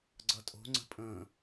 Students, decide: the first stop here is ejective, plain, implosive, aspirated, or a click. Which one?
click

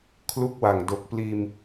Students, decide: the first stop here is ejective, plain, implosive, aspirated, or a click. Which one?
aspirated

